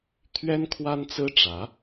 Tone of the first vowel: high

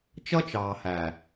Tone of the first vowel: high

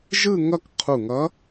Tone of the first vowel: falling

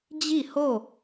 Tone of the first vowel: falling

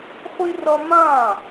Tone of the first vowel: high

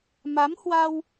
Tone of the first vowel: rising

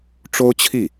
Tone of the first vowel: high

